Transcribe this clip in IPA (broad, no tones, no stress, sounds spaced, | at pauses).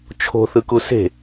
t͡ʃʰ o̤ θ ɯ k u s e̤